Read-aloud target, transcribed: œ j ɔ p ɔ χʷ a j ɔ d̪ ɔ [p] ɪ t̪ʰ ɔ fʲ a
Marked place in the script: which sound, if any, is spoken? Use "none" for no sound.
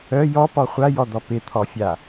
p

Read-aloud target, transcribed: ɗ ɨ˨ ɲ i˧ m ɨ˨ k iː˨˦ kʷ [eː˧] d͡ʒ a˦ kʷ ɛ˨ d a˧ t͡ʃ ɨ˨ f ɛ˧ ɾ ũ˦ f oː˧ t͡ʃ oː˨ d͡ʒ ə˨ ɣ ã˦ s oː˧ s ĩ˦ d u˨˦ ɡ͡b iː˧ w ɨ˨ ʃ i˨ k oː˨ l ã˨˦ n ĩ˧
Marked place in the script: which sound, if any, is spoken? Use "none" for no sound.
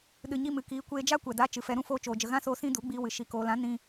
eː˧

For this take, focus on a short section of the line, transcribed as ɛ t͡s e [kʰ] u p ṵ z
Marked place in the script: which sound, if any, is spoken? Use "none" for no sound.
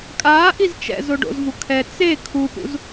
kʰ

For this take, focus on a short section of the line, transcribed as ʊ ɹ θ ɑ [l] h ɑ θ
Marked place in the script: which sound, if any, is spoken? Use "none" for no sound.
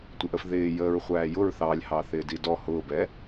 lʲ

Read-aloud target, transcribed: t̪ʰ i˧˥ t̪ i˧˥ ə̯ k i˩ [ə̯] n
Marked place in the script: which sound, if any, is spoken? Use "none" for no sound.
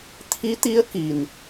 none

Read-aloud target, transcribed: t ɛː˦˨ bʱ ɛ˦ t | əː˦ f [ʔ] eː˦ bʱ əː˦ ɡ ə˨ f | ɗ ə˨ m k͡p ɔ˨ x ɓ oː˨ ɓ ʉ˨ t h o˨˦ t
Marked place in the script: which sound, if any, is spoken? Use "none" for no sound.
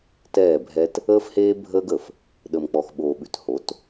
h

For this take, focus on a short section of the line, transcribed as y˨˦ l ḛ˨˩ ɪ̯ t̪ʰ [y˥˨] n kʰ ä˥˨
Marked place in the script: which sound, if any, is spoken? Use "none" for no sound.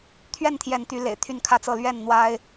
y˥˨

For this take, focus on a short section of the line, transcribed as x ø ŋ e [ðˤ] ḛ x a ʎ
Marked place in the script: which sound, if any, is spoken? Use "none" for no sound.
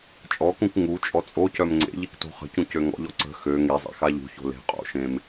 zˤ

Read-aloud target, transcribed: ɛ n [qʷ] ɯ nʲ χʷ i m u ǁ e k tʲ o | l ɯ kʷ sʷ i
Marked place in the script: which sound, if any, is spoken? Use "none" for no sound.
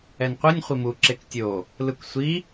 qʷ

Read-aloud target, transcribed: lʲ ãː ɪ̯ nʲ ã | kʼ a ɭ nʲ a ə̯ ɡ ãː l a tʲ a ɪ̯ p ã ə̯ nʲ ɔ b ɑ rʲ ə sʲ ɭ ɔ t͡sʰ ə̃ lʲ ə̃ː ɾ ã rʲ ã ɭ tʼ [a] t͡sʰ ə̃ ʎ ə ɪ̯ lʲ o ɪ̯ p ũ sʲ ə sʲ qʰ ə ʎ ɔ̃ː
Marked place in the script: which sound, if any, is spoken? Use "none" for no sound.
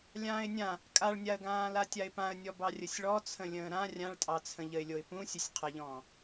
ɑ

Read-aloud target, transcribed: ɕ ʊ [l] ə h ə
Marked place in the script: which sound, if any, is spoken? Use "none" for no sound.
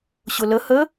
l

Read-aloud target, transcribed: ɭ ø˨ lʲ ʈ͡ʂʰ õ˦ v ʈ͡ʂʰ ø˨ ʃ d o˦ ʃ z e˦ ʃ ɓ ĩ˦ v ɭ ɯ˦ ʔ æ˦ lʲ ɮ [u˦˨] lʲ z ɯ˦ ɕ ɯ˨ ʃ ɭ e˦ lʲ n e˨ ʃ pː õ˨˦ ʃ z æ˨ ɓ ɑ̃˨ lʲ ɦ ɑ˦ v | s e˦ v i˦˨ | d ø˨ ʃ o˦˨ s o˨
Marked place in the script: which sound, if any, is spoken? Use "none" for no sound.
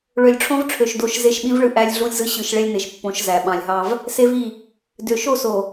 u˦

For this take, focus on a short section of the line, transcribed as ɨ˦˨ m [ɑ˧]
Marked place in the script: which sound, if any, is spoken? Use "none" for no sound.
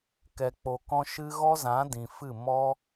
ɔ˧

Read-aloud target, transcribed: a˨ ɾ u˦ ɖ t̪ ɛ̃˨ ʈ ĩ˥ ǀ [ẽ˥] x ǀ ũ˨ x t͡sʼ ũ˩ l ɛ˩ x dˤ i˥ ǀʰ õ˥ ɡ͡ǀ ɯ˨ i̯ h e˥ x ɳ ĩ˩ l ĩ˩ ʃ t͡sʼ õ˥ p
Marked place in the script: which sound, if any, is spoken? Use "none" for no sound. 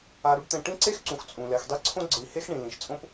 e˥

